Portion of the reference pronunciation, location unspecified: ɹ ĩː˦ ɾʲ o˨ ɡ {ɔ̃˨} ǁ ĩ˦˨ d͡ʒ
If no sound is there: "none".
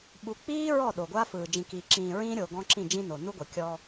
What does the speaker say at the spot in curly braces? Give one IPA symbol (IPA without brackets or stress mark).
ɔ̃˦